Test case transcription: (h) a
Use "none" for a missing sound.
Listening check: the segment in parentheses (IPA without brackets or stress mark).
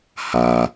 h